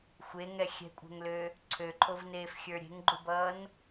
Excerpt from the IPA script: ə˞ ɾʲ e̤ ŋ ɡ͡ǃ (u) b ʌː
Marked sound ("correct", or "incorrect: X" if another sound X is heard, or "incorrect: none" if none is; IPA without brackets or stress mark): correct